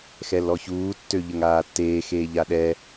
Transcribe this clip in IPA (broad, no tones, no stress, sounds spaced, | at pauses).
x ɛ l ɔ ç uː tː ø ʎ ə ŋ aː tː eː x eː ʎ a ɗ ɛ